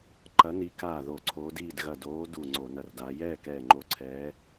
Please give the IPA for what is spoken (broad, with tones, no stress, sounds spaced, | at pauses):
ǃ ɐ˨˦ n i˨˦ k aː˧˩ ð o˧˩˧ ǀʰ oː˨˦ d iː˥˨ d ɣ ɐ˧˩ d oː˨˦ d u˧˩ ŋ͡ǀ o˧˩˧ n ɐ˧˩ r d a˨˦ j ɛː˥˨ k ɛː˧˩ ŋ͡ǃ o˧˩ ǀʰ ɛː˨˦